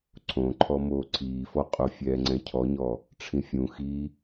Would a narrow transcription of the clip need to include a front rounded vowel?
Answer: no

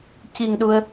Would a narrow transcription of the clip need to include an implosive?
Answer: yes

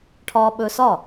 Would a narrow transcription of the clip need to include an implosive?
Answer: yes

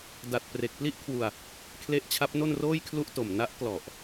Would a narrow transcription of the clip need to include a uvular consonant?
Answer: no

